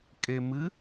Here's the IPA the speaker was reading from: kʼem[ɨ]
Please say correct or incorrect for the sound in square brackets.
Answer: correct